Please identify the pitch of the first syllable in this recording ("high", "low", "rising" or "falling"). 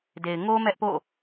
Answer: low